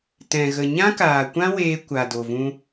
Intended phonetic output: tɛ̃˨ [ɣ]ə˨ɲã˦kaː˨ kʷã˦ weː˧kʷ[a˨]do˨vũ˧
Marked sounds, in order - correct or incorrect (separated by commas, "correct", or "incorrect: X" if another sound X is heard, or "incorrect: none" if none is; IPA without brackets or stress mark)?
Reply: correct, correct